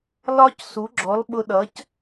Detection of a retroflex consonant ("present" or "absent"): absent